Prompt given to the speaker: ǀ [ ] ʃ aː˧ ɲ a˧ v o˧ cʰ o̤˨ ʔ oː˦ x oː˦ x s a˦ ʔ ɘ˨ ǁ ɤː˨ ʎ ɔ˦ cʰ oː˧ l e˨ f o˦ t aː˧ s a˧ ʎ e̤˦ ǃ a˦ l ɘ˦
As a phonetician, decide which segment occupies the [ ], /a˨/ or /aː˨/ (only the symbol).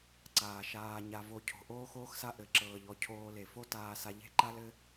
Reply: aː˨